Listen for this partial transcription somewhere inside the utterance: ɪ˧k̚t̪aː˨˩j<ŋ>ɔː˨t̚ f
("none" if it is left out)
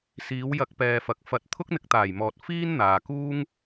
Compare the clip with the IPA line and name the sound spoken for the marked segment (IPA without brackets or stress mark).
m